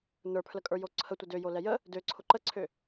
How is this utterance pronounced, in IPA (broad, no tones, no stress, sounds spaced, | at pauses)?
n ə˞ pʰ l ə kʼ ə˞ j o ǀʰ ə tʷ ə d ø j o l ɛ j ə | d ø ǀʰ ʊ ǃ ə ǀʰ ø